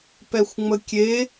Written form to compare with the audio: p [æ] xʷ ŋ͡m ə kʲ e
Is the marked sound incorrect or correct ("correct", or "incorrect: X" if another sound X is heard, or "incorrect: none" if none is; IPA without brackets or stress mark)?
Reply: incorrect: ɛ